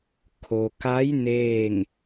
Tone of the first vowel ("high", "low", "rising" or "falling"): low